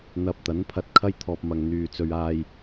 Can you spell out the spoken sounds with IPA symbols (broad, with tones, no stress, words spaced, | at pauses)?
n̪ɐ˧p̚ t̪ɐ˨˥npʰɐ˧t̚kʰɐ˥j t̪ʰɔː˧p̚mɐ˨ŋ n̪yː˨t͡sɵ˧ɥaː˧j